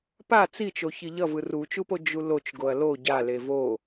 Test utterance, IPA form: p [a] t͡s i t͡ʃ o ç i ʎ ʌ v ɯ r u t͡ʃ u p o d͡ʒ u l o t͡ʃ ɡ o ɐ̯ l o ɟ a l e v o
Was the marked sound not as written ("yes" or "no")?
no